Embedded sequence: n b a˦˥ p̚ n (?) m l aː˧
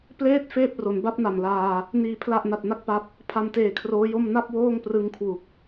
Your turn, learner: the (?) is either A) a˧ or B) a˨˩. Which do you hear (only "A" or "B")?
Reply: B